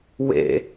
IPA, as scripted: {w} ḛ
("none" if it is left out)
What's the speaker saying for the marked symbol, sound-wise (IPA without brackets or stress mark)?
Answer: w